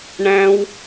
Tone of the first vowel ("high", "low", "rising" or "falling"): high